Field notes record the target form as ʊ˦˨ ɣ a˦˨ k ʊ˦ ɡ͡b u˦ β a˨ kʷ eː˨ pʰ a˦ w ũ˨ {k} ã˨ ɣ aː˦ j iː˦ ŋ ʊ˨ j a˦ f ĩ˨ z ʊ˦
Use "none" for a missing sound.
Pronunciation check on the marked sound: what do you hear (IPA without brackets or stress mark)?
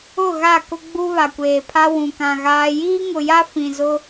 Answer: k